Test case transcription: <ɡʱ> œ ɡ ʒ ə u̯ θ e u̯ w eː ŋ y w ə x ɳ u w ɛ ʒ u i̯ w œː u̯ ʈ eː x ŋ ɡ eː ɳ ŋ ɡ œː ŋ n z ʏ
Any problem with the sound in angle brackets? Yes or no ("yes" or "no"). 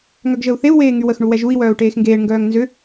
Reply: yes